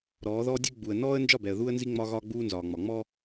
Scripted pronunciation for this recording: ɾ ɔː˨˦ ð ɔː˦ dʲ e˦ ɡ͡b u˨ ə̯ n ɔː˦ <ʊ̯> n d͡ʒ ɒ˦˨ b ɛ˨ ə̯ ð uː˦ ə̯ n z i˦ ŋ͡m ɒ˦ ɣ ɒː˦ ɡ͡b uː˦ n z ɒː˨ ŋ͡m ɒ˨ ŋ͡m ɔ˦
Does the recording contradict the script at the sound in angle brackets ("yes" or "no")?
yes